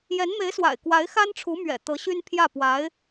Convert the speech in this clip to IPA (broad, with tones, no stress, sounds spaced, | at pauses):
j ɛ˧˥ n m e˧˥ ɪ̯ s w a̰˨˩ ɪ̯ k w a˧˥ ɪ̯ x a˥ n ʈ͡ʂʰ u˧˥ m ɥ ɛ̰˨˩ t̪ ɤ˧˥ ɕ y˥ n pʰ j ä˥˩ p w a˧˥ ɪ̯